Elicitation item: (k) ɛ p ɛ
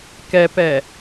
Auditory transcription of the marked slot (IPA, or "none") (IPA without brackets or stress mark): k